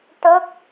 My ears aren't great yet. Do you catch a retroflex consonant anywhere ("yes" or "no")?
yes